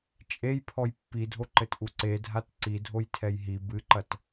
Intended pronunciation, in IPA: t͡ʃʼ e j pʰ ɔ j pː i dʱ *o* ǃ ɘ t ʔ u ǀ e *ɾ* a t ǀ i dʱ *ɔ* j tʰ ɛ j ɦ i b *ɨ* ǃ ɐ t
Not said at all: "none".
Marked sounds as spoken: o, dʱ, o, ɨ

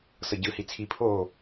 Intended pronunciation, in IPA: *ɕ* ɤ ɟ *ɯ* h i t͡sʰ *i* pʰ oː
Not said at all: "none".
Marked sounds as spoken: s, ɯ, i

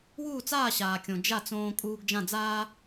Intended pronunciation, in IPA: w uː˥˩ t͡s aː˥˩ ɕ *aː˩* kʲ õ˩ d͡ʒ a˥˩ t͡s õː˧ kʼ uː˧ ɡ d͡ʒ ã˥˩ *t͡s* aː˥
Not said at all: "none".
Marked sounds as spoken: aː˩, d͡z

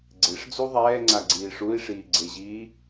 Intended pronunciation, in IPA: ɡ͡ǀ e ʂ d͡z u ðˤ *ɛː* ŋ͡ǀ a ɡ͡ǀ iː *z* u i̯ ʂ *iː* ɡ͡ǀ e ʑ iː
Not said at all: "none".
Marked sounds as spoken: ɛː, ʂ, iː

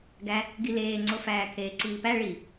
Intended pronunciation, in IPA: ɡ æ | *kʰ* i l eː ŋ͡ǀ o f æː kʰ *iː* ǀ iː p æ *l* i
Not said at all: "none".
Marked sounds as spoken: ɡ, eː, ɭ

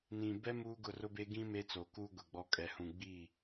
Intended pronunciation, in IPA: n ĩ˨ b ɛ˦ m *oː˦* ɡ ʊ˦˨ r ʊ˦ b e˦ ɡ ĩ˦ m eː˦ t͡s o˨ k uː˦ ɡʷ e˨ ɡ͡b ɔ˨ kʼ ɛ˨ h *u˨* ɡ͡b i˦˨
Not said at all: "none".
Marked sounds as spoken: uː˦, ũ˨

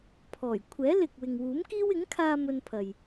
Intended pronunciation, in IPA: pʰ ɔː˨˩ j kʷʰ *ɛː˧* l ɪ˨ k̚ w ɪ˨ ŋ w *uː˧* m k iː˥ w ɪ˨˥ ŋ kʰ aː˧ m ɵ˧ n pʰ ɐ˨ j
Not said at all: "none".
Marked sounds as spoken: ɛː˨˥, uː˨˥

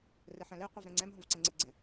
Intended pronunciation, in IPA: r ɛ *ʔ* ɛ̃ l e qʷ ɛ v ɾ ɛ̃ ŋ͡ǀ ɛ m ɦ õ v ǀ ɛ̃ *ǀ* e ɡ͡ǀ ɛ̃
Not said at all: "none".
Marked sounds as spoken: ħ, ŋ͡ǀ

